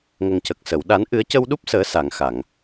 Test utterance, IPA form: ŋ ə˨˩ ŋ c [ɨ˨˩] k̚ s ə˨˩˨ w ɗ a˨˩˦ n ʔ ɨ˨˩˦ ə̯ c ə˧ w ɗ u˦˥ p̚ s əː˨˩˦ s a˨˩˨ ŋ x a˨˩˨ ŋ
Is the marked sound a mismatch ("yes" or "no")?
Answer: yes